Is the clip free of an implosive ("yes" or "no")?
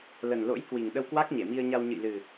no